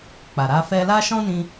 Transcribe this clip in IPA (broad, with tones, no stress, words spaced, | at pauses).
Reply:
k͡pa˨ɾa˧ fɛ˧la˦ʃɔ̃˦nĩ˧